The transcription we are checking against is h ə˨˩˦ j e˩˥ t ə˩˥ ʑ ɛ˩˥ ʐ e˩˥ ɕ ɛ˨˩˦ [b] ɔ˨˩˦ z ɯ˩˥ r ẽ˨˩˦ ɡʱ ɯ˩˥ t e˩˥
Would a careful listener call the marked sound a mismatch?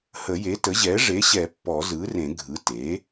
yes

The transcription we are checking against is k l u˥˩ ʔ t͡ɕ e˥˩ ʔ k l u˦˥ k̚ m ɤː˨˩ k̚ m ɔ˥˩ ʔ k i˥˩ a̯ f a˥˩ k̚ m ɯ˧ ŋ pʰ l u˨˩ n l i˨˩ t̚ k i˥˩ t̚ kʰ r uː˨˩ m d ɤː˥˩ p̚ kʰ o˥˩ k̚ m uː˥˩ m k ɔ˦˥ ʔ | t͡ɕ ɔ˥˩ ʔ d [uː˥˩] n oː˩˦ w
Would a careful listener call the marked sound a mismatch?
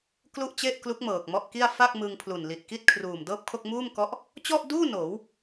no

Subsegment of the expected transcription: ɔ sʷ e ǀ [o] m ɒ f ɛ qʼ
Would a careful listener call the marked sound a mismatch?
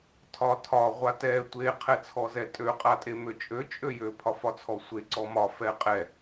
yes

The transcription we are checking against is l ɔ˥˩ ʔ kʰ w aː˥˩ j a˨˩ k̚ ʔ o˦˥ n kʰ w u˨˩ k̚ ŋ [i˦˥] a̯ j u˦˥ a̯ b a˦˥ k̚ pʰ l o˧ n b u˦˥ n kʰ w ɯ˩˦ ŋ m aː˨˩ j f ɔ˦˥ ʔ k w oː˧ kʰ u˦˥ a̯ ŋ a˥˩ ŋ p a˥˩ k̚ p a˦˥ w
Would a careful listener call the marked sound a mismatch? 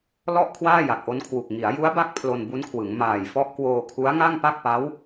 yes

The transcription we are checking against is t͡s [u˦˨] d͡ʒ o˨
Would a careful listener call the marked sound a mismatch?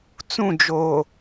yes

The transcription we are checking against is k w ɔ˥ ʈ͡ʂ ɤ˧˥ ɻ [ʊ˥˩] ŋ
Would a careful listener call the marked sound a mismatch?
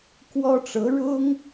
yes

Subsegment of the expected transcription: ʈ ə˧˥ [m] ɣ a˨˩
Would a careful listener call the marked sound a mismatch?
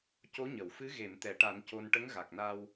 yes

